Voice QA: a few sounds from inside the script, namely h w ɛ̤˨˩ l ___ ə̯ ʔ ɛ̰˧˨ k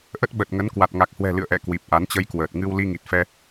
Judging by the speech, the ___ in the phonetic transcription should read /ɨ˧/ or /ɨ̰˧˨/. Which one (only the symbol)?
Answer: ɨ̰˧˨